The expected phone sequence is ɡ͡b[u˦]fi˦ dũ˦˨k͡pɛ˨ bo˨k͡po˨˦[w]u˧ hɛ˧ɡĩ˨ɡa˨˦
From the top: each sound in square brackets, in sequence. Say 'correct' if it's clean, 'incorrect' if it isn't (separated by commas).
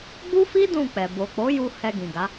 correct, incorrect